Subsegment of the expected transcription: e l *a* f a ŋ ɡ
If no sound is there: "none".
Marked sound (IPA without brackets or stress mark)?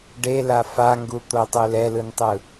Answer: a